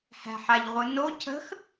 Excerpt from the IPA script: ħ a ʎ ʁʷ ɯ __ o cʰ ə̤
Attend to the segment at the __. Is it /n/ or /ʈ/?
n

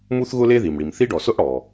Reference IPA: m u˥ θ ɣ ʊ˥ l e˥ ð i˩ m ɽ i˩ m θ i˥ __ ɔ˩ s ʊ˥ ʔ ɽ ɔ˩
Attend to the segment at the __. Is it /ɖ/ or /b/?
ɖ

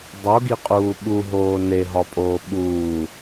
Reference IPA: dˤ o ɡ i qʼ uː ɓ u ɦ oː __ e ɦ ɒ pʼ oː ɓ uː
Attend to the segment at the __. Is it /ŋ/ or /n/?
n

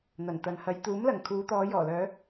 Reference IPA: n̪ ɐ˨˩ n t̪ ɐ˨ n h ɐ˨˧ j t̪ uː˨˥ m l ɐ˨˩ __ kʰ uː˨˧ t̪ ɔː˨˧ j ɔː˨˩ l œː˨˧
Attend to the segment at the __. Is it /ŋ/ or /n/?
ŋ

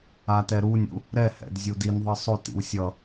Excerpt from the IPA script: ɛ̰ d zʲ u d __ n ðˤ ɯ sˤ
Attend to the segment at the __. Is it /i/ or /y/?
i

